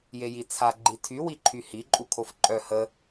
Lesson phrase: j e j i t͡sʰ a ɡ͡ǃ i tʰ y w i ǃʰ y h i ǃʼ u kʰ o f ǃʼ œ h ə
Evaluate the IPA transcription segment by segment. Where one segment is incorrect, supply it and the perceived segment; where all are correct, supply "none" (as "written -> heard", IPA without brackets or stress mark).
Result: none